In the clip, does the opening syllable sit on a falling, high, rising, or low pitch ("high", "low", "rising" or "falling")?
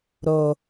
low